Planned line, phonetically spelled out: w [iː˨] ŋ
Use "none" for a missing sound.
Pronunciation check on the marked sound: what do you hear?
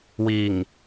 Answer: iː˨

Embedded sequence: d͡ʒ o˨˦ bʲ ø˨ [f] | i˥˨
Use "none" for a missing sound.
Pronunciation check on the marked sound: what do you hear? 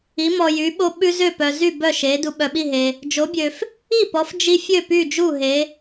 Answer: f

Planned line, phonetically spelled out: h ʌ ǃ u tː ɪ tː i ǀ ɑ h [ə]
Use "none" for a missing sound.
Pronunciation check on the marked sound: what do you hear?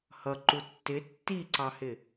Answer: ɪ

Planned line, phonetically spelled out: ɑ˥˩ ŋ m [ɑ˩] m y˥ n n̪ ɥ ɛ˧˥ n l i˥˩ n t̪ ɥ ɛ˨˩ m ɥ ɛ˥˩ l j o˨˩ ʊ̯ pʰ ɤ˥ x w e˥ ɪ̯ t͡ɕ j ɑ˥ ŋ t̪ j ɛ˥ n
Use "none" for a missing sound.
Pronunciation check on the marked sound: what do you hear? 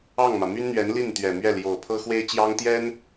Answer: ä˩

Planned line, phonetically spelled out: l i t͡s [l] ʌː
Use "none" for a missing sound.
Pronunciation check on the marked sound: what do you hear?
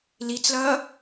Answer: l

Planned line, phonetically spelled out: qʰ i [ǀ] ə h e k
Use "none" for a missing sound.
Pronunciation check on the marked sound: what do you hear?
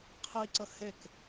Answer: ǀ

